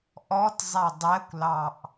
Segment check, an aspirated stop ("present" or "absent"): absent